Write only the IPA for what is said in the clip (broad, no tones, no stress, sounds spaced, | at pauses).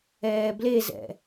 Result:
ɛː b l e z ɛ̰